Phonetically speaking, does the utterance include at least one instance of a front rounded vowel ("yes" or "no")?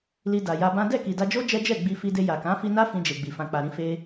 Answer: no